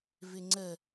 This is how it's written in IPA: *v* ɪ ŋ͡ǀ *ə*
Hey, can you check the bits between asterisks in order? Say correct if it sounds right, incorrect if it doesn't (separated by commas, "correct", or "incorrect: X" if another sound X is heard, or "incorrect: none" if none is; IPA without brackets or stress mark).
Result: correct, correct